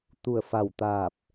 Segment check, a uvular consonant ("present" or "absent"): absent